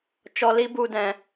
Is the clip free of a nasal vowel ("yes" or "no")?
no